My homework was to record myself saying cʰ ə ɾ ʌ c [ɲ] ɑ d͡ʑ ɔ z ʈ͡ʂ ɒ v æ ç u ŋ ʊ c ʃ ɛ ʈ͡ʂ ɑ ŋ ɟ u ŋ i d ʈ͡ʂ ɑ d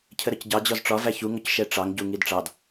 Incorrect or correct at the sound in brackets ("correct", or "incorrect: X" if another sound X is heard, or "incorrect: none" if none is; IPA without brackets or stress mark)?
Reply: incorrect: ɟ